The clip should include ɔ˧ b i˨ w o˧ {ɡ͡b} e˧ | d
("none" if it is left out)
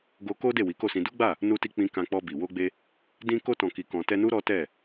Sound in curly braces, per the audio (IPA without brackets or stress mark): ɡ͡b